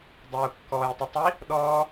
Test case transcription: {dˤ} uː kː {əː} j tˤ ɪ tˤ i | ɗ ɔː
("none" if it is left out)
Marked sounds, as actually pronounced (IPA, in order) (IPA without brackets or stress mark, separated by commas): dˤ, ɔː